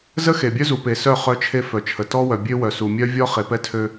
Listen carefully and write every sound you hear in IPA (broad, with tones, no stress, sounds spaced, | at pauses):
z ə˦ x e˨ bʲ œ˦ z u˨ p e˨ s œ˦˨ χ œ˦ t͡ʃʰ e˦ f œ˨ t͡ʃʰ ə˨ t ɔ˦ w œ˨ bʲ ø˦ w œ˨ s u˨ mʲ œ˦ vʲ ɔ˦ χ e˨ p ɛ˦ tʰ ø˦